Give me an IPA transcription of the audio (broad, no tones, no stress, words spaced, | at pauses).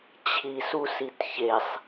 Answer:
t͡ɕʰisusit çesˤ